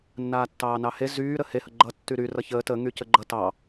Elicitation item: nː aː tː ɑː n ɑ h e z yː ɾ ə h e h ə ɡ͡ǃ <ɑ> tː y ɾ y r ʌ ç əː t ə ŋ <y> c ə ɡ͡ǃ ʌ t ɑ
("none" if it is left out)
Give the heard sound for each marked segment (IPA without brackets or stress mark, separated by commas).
ʌ, y